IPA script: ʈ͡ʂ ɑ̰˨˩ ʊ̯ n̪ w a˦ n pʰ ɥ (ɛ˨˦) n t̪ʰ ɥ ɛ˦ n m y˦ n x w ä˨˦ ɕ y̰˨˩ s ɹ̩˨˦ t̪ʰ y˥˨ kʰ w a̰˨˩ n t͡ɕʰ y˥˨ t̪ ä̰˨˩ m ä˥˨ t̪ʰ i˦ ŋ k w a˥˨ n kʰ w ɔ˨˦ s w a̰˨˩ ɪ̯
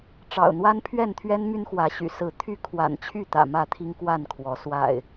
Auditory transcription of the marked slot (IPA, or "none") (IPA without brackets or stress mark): ɛ˥˨